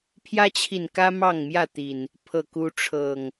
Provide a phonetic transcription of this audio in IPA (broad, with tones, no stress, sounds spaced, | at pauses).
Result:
pʰ j ä˦ t͡ɕʰ i˨ n k ä˦ m ɑ˥˨ ŋ m j ä˥˨ t̪ i˨˩ n | pʰ ɤ˥˨ k u˦ ʈ͡ʂʰ ɤ˨˩ ŋ